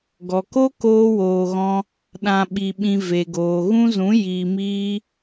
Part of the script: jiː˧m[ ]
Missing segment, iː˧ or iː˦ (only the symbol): iː˦